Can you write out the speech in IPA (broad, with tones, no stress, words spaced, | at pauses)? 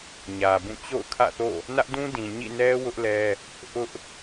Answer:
ɲä˨bũ˦˨ t͡ɕo̰˦˨ʊ̯kʰä̰˦˨θo̰˦˨ | nä˦ʔdũ˦ dĩ˨ ɲḭ˦˨nɛ˦ wʊ˦ʔlɛ˦ | ʔʊ˦ʔ